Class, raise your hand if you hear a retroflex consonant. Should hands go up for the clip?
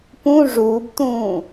yes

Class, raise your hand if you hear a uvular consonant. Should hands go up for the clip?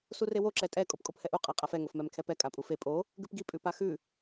yes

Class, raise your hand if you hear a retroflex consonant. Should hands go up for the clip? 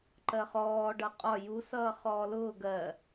yes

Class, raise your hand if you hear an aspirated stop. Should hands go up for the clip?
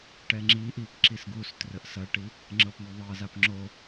no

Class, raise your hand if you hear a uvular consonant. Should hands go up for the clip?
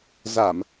no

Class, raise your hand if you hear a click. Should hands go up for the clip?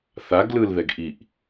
no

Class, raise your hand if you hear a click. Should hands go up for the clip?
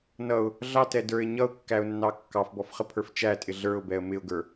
no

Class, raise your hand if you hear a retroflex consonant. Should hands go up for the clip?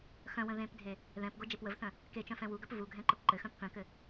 no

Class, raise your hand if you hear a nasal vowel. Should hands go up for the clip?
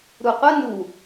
no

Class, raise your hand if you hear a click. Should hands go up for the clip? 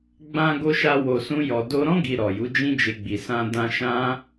no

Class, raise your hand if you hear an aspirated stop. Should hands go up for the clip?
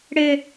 no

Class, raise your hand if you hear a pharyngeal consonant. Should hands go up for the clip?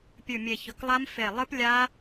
no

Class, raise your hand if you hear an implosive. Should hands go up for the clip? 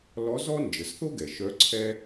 no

